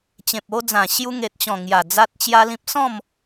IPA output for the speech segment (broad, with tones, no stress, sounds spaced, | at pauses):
t͡ɕ ẽ˨ p̚ o˧ d͡z ã˨˩ ɕ j u˧ ŋ e˨ t̚ t͡ɕ ɔ̃˨˩ ŋ j a˨˩ d͡z a˦ t̚ t͡ɕ j a˦ l ĩ˦ p̚ s ɔ̃˥˧ m